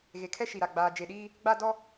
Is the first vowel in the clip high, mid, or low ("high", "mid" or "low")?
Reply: mid